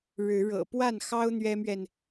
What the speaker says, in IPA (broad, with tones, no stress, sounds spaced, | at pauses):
ɻ ɻ̩˨˦ ɻ ɤ̰˨˩ p w a˥˨ n x ɑ˦ ʊ̯ n̪ ɥ ɛ˦ m ɥ ɛ˨ n